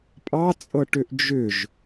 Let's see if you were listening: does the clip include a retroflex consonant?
yes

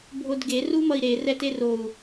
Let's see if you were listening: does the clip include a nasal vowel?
no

